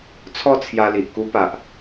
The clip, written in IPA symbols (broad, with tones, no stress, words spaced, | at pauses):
t͡sʰɔ˥˧t͡sʰja˧li˨ʔ ku˧pa˨ʔ